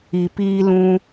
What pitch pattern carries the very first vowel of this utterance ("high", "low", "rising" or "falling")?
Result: low